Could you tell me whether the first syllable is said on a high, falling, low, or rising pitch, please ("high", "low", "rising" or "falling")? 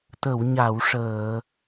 low